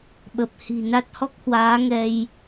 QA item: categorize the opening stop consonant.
implosive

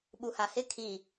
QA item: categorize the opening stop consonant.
implosive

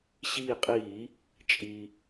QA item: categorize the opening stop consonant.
ejective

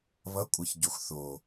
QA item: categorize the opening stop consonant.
ejective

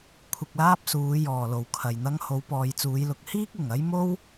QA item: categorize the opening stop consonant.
aspirated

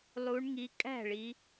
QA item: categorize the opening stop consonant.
ejective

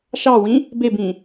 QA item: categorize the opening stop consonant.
plain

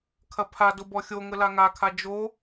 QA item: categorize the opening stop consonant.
aspirated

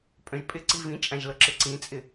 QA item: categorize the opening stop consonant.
ejective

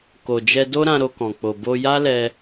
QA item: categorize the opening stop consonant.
plain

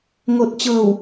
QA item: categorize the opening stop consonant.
plain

